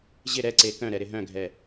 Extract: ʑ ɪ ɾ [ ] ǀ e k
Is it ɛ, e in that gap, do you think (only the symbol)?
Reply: ɛ